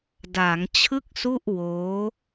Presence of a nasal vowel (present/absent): absent